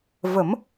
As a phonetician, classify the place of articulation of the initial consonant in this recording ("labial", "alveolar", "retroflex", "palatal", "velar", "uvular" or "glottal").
labial